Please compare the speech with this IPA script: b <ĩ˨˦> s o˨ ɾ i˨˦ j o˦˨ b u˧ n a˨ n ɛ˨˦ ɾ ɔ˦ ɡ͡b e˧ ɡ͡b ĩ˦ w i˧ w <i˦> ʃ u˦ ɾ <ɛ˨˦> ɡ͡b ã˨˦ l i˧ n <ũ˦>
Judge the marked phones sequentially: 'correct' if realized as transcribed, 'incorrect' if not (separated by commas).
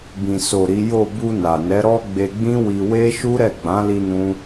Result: incorrect, incorrect, incorrect, correct